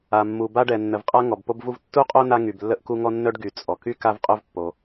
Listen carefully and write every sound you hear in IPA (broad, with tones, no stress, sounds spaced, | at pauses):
a˩ mː u˩ b a˥ ɖ ɛ˩ nː ə˩ v qʼ a˥ ŋ ɔ˩ b p o˥ b v u˥ v tː u˥ qʼ o˥ n a˥ ŋ y˩ b lː ə˥ ʔ k u˥ ŋ ɔ˥ nː œ˥ ɖ ɡ y˩ t͡sʼ ɔ˩ k y˥ k a˥ v qʼ œ˥ v pː o˩